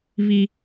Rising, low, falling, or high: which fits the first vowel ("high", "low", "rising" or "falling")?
high